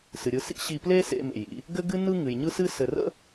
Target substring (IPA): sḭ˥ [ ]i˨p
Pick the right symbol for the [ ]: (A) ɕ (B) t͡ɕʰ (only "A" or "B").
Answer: A